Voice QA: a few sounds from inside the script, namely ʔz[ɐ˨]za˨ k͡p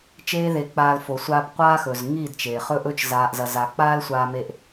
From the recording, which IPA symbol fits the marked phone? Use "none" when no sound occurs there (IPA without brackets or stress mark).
ɐ˨